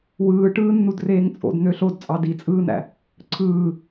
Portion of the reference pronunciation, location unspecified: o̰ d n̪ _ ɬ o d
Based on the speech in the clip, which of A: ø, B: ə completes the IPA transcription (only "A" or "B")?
A